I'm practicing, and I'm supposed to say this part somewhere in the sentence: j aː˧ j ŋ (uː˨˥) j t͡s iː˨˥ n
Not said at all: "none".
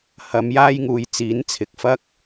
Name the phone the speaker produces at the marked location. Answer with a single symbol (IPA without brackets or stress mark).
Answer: uː˨